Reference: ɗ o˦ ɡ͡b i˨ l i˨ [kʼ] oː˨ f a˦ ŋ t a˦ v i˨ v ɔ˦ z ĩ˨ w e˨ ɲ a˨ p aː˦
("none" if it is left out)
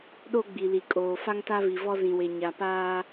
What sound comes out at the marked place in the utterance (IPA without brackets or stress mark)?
kʼ